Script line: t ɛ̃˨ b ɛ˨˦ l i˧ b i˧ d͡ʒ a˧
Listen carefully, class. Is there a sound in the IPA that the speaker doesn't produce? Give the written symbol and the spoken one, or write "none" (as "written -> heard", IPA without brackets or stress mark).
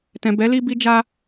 none